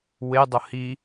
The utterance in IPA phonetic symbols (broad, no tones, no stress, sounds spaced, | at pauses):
w e dˤ ʊ h i